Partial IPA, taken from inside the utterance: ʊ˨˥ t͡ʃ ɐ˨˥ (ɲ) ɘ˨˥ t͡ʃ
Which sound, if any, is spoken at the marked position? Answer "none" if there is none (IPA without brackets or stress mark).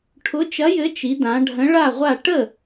j